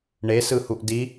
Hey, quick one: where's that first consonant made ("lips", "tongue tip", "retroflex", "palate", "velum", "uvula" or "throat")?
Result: retroflex